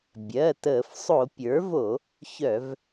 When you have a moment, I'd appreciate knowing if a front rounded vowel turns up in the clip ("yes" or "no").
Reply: yes